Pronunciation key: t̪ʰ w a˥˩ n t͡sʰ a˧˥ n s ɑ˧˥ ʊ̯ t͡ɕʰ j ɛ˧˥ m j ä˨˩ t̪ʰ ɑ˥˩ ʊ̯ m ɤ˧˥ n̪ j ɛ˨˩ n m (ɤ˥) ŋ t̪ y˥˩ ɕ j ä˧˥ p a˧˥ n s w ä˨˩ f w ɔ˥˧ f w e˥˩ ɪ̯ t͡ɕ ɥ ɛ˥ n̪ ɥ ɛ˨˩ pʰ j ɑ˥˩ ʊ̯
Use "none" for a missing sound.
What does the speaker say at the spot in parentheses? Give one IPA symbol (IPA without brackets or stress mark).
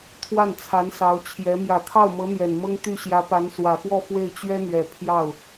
ɤ˥